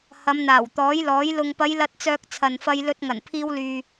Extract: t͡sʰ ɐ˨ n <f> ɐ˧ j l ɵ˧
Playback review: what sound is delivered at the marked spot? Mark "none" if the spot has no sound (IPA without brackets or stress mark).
f